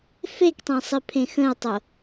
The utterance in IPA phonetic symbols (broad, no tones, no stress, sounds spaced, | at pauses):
f e k tˤ ẽ sˤ i pʰ ẽ x ə̃ ʊ̯ tˤ o